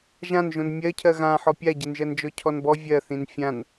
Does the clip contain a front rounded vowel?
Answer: no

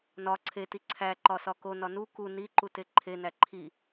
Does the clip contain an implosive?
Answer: no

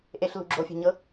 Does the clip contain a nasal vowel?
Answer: no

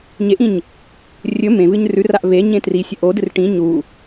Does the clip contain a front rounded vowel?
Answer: no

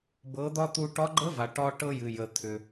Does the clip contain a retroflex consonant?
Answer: yes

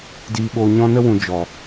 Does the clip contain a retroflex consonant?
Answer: no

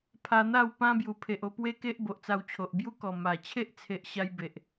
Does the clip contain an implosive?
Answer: no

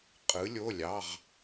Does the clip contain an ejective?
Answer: yes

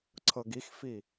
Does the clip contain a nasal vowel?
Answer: no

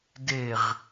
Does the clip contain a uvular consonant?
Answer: yes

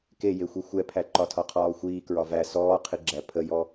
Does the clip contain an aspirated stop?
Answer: yes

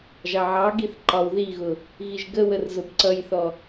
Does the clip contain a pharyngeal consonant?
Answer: yes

